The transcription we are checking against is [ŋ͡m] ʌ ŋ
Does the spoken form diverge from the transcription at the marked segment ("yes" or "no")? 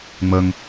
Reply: no